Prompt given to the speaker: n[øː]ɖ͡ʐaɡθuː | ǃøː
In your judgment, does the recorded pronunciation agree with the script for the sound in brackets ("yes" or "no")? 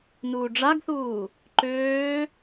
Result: no